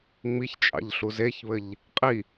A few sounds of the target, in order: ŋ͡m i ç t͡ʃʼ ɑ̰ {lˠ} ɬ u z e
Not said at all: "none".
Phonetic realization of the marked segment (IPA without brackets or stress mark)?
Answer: ʎ